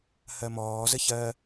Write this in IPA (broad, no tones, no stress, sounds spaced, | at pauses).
h ɜ m ɔː z ə ç ɜ